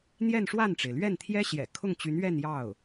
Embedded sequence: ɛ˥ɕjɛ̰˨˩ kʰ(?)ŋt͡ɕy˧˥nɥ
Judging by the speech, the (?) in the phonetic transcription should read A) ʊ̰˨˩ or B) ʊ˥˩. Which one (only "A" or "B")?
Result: B